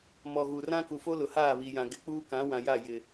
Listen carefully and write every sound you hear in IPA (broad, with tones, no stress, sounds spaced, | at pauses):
m ɔ˨ ɣ u˨ r ã˦ k u˨ f o˦ l ʊ˨ h aː˦˨ β i˨ j ã˨ ɡ ɪ˨˦ k͡p uː˦ k ã˨˦ w ã˨ j a˦˨ j ɪ˨